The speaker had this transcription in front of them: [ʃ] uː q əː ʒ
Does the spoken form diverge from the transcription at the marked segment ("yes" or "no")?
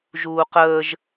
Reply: yes